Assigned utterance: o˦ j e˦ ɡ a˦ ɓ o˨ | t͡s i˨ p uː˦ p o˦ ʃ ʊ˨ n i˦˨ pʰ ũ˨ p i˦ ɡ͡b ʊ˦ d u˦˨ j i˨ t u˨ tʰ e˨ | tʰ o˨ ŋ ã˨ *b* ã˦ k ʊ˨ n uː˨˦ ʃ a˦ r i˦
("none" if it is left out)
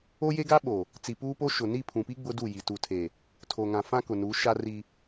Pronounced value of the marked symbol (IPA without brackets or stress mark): f